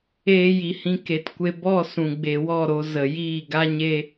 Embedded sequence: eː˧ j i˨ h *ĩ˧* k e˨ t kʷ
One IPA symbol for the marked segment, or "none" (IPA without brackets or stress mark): ĩ˧